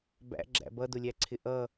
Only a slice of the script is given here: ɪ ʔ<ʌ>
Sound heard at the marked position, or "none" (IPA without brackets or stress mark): ʌ